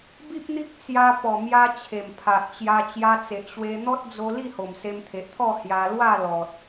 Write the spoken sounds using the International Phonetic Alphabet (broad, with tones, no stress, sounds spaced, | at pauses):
b i˦ p̚ n̪ i˦ k̚ t͡s j a˧ p ɔ˨˩ m j a˧ t͡ɕʰ e˨˩ m pʰ a˨ ʔ t͡ɕ j a˧ t͡ɕ j a˧ t͡s e˨ ʔ ɕ w e˧ n̪ ɔ˦ t̚ d͡z o˧ l i˥˧ h o˨˩ m s e˧ m t̪ʰ e˨ ʔ t̪ʰ ɔ˥˧ h j a˧ l w a˥˧ l ɔ˨ t̚